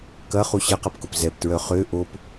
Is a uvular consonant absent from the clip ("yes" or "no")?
no